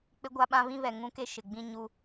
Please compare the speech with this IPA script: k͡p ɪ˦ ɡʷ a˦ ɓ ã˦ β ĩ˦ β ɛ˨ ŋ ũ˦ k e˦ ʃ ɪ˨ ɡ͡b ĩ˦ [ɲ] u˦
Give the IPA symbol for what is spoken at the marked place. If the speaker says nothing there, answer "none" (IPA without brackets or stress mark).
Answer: ɲ